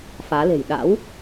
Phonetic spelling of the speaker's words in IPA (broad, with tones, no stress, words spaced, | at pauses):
faː˨˦le̤˨˩j ɗa̰˧˥w